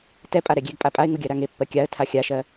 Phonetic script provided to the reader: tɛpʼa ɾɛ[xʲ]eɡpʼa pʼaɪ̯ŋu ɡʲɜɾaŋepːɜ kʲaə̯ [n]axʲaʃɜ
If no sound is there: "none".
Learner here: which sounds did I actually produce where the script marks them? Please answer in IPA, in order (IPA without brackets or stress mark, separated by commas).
ɡʲ, tʰ